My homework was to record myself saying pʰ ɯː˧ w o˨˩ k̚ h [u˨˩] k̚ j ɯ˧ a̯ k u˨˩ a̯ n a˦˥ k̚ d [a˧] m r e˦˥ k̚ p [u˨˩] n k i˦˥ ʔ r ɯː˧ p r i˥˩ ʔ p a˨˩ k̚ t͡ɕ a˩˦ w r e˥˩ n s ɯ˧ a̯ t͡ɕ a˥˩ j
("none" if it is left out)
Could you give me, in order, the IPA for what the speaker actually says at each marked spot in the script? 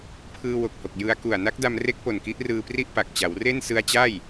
o˨˩, a˧, o˨˩

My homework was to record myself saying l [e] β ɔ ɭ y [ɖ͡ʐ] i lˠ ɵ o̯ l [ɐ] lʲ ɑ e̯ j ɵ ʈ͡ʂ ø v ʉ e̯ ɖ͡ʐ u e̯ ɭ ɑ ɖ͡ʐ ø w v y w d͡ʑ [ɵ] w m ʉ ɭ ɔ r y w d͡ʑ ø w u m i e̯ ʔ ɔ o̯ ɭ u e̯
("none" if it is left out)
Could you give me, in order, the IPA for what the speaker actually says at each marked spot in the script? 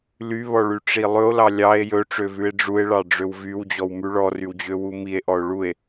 y, ʈ͡ʂ, ɑ, ɔ

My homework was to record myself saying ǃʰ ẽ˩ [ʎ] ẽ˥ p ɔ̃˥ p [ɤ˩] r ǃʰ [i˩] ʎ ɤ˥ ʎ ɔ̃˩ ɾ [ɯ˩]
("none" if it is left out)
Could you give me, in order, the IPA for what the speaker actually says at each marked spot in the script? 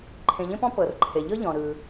ʎ, ɤ˩, e˩, ɯ˩

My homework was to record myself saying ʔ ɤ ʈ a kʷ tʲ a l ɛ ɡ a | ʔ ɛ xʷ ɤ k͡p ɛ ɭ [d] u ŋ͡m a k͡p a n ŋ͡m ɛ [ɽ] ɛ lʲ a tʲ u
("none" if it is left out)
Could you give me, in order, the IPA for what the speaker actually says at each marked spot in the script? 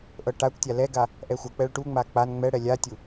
ʈ, ɽ

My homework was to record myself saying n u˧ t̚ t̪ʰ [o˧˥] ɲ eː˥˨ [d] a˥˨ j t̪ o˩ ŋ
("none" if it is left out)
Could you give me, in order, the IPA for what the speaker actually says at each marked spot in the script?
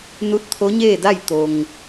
o˧˥, d

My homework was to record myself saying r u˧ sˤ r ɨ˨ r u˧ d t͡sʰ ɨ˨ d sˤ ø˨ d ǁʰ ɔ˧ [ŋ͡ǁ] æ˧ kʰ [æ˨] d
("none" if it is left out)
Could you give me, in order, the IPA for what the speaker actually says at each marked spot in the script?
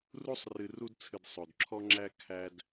ŋ͡ǁ, æ˧

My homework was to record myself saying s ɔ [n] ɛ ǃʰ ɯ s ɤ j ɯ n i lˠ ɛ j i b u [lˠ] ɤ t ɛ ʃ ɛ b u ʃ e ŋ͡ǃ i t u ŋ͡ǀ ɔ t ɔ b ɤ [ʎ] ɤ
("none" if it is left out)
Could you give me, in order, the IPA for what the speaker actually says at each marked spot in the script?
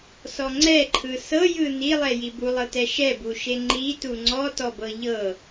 ŋ͡ǀ, lˠ, ʎ

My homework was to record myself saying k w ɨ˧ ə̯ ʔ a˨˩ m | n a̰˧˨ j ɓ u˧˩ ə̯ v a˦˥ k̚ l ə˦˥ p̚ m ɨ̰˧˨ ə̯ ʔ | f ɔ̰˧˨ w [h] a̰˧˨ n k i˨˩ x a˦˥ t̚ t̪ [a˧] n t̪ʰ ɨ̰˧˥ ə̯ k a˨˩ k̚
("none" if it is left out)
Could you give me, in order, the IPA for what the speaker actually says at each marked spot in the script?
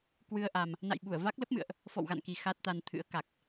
ɣ, a˧

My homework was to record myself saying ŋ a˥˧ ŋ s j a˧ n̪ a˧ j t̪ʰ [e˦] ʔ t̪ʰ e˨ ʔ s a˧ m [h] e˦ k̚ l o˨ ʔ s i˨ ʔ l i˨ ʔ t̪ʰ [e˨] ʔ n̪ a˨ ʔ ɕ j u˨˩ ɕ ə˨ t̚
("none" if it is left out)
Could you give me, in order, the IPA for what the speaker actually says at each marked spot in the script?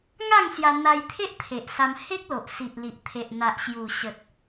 e˦, h, e˨

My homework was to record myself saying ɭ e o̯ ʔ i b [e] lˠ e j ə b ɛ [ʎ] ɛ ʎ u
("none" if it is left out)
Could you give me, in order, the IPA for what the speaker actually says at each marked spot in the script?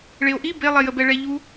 e, ɭ

